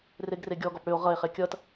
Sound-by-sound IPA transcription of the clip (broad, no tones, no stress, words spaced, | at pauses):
reɡreɡʲɔɡɔp ɽʏo̯ ʁʌe̯χe kʲʌt